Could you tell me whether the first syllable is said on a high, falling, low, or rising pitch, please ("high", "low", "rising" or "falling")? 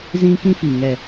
high